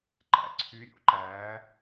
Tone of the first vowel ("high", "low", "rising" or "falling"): low